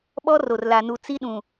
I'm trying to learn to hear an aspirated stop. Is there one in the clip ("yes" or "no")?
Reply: no